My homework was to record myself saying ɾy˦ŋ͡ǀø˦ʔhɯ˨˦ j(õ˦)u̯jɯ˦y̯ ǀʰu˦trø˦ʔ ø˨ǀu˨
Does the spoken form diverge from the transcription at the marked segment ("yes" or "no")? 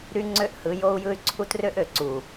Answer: yes